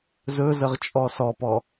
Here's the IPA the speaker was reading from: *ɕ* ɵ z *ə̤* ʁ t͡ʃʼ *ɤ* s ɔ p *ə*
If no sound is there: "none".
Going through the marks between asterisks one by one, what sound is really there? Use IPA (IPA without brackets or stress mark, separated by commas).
z, ə, ɔ, ɔ